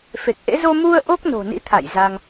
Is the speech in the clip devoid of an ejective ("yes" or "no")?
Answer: yes